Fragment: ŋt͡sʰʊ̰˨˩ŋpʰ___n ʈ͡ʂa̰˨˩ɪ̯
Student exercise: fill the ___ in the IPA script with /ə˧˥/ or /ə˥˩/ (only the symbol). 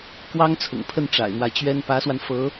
ə˥˩